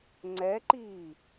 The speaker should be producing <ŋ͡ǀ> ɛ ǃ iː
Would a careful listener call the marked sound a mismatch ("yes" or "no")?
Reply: no